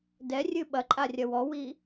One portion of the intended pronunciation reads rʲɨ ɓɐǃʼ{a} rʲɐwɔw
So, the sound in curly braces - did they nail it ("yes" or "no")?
yes